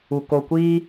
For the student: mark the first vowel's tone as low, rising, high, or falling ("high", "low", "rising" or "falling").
low